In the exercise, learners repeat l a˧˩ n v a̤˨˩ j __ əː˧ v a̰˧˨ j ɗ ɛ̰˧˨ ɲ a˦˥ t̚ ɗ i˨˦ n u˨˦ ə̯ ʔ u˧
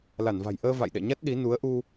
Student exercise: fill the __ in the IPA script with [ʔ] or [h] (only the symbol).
ʔ